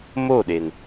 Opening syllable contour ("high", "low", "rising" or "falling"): falling